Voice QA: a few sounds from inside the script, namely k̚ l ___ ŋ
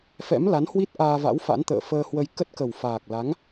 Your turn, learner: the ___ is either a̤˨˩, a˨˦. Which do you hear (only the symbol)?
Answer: a˨˦